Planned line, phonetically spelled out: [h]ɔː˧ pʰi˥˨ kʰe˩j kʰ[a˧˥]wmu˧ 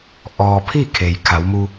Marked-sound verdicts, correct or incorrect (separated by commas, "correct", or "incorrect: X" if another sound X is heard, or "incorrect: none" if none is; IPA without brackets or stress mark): incorrect: ʔ, incorrect: a˩˧